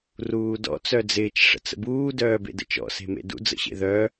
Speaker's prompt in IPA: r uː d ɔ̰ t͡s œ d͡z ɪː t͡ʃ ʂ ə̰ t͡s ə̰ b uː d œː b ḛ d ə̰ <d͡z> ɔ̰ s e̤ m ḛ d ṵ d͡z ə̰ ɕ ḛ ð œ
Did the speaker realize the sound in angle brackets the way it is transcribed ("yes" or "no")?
no